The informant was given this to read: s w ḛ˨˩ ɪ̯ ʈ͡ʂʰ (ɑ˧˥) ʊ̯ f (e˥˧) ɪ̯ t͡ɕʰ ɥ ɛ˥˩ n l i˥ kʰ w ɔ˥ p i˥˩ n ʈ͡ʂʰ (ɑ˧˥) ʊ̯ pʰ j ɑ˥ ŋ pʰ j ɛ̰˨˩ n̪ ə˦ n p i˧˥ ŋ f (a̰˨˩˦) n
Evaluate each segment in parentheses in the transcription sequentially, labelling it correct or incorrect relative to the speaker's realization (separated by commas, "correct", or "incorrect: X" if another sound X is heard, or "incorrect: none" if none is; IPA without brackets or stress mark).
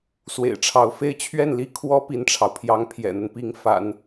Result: correct, correct, incorrect: ɑ˩, correct